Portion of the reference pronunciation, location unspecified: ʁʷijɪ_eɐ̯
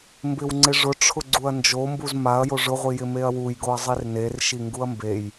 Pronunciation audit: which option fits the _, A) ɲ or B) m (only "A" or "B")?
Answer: B